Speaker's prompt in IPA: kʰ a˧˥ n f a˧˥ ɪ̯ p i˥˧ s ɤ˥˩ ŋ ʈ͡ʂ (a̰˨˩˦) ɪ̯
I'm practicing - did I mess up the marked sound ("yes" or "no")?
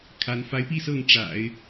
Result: no